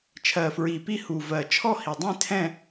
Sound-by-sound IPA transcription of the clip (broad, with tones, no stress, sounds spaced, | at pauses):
t͡ʃʰ ɜ˨˩ f ɹ i˨˩ p i˦˨ h u˨˩ v ɜ˨˩ t͡ʃʰ ɔ˦˨ h i˨˩ dˤ ĩ˦˨ tʰ ɛ̃˦˨